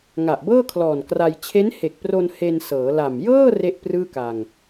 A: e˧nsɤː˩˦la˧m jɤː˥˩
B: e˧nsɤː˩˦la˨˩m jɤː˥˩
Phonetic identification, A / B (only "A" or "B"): B